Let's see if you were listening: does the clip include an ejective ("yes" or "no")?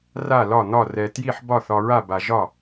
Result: no